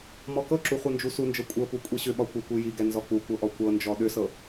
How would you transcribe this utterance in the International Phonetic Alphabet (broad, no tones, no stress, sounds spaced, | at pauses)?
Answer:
m ɔ k ɤ ǁ u χʷ ɤ n d͡ʒ u s u n d͡ʒ ɤ kʷʼ ɤ p u kʷʼ i ɕ ʏ ɓ ɒ kʷ ɤ kʷ i j i ɡ ɛ n z ɔ k͡p u kʷ ɤ ʔ ɔ kʷ ɤ n d͡ʒ ɔ ɗ ʏ s ɤ